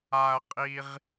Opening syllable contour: high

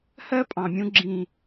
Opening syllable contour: high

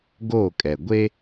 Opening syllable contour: falling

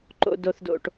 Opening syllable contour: high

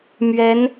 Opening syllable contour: rising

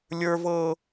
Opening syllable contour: high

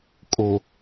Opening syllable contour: low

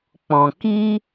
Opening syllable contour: low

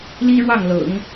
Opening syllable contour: high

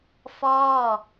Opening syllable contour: falling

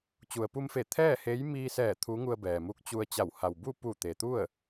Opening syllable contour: low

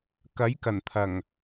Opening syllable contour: rising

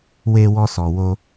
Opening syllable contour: high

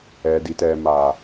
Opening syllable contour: low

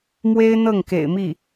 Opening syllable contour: high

